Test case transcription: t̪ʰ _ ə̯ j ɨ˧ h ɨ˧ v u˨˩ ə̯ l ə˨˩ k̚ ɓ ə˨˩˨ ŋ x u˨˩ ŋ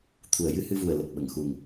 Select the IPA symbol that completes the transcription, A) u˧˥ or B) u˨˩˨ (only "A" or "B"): B